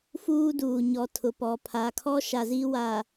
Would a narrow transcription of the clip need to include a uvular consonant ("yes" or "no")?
no